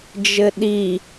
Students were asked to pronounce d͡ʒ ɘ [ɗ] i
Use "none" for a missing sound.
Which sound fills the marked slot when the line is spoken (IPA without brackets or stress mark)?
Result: ɗ